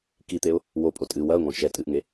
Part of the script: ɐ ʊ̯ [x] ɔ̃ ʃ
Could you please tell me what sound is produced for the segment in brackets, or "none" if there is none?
ŋ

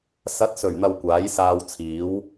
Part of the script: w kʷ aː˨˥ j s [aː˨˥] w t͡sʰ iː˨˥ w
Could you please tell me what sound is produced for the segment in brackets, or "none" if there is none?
aː˧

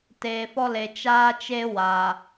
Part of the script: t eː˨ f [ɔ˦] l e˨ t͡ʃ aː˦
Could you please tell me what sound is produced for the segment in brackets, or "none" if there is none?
ɔ˦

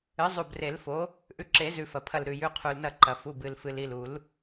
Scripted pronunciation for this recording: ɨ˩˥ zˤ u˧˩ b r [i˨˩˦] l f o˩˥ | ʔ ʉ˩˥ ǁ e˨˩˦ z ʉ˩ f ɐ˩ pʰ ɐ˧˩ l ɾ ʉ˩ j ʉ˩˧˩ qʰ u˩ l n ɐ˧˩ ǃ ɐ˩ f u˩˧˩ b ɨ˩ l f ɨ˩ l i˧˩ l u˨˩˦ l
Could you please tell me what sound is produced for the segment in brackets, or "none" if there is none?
e˨˩˦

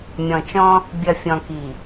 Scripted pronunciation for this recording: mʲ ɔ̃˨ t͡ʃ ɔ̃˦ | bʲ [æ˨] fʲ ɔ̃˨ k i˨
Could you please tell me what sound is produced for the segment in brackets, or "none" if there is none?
ɐ˨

